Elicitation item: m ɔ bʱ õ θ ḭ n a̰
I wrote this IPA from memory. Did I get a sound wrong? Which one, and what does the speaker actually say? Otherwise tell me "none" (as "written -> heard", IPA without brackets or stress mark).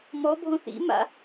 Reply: n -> m